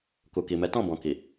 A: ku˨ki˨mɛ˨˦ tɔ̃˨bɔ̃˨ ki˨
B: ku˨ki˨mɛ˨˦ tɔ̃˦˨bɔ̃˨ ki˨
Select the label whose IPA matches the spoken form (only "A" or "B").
B